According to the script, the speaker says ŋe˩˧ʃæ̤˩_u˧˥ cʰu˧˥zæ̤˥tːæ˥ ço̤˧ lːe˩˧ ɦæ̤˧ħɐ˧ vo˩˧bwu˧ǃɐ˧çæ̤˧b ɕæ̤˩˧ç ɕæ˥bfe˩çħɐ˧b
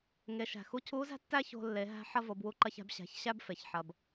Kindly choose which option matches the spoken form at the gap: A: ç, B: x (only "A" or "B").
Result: B